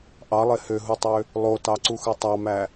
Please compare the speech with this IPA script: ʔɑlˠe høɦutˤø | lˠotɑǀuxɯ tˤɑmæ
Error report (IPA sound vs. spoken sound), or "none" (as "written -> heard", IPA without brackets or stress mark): none